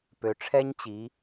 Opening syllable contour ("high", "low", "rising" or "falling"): low